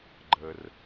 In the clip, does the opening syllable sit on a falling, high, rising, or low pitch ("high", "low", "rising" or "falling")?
low